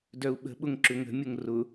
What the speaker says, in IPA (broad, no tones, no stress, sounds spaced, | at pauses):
d œ u̯ ɓ ə̤ ɓ ʊ ŋ ǁ ʏ ŋ ə̤ mʲ ʊ ŋ r ʊ